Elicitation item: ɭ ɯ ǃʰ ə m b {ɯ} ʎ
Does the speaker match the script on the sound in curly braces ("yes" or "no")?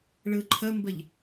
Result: no